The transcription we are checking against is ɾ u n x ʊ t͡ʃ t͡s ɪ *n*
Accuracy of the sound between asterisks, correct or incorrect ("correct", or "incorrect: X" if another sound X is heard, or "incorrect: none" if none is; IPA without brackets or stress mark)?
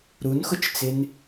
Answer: correct